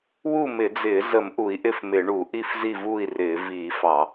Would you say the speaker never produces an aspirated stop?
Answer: yes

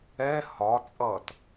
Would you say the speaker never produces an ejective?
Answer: no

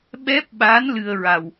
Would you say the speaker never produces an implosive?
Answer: no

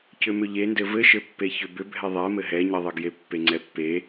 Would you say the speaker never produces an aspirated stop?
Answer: yes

